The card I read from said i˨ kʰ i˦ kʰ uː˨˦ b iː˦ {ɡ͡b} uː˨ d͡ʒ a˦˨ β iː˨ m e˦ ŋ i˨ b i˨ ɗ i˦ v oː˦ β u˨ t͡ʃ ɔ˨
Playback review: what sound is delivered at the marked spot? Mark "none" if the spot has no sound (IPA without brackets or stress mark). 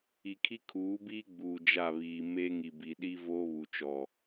ɡ͡b